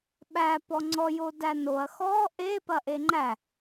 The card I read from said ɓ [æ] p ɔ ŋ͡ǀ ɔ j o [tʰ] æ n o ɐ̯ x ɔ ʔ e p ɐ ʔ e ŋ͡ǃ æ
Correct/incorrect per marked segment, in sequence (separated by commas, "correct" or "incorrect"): correct, incorrect